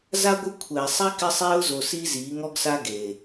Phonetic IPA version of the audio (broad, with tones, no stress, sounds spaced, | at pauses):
z a˦ ɡʷ ɪ˦ kʷʰ ɛː˨ sˤ ɛ˦ k ɪ˦ sˤ eː˦ ʊ̯ z o˨ s i˦ z iː˨˦ ŋ ɔ˦ ɡ s a˦ ɡ e˨